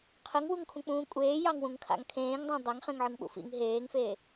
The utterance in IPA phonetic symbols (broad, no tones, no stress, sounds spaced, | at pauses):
qʰ ə ŋ w u ŋ kʰ ũ k͡p ũː kʷʼ eː j ɑ ŋ w ũ ŋ kʰ a̰ ŋ kʰ ẽː ŋ dˤ ɑ̃ dˤ a ŋ χ ẽ ŋ ʕ ɨ ŋ ɓ ṵ f ḭ ŋ ɦ eː ŋ f eː